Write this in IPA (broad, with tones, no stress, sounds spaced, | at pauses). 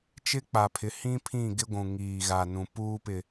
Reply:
t͡ʃ ɪ˦ k͡p a˨ pʰ ɪ˨˦ h ĩ˦ pʰ ĩ˦˨ ɡ ɪ˦ ɡʷ ũ˨ ŋ iː˨ ɣ a˨ n ũ˨ p uː˦ p ɪ˨